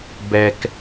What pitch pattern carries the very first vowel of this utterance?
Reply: high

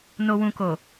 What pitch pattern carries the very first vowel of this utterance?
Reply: low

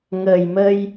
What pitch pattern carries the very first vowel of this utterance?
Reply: low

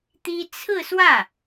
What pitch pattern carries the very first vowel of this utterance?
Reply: high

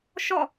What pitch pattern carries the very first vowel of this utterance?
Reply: falling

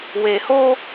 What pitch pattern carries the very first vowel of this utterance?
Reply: low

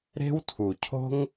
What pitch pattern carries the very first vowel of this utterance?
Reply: high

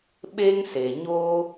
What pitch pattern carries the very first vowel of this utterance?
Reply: high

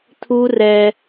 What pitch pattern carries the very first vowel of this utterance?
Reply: high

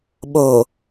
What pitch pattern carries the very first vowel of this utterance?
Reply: low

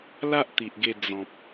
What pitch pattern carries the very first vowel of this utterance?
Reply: high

